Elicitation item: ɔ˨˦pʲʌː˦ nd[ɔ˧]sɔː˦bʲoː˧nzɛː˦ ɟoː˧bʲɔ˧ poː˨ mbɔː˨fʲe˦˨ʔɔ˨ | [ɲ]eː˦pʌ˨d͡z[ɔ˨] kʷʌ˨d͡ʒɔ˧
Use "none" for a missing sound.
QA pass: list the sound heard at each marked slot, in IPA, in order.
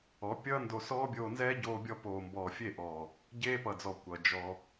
o˧, ɟ, ɔ˨

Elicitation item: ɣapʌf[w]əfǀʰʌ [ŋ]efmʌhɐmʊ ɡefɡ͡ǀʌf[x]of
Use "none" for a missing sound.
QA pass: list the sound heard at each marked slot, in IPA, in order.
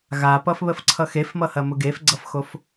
β, x, x

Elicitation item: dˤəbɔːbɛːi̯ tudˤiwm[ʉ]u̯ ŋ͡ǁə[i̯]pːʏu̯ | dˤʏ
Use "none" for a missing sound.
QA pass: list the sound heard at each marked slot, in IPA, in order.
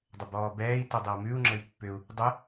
ʉ, i̯

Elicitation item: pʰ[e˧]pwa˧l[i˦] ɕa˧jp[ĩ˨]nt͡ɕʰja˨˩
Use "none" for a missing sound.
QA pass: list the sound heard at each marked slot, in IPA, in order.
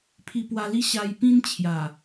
i˧, i˦, ĩ˦

